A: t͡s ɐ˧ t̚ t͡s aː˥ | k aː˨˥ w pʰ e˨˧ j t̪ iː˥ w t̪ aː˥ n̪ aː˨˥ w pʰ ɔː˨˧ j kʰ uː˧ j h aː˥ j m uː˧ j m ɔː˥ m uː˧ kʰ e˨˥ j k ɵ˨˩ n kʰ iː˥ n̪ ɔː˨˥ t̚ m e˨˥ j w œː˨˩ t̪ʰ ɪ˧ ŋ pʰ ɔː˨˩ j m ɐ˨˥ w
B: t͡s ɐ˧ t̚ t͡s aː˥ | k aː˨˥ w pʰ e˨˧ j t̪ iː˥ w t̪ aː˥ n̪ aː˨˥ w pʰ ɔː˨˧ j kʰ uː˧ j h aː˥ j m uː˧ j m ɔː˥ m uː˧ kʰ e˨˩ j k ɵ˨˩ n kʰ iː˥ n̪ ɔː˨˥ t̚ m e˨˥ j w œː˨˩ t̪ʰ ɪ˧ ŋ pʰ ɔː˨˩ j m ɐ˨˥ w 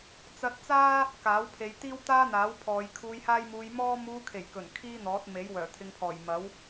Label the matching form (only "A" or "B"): B